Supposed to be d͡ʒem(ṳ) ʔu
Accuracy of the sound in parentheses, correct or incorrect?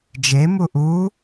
incorrect